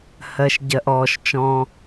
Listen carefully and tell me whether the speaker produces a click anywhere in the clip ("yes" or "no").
no